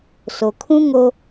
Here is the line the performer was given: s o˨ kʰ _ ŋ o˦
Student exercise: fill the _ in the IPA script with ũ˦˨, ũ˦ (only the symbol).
ũ˦